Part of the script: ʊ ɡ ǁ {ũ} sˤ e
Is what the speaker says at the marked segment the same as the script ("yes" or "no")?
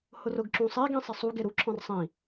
yes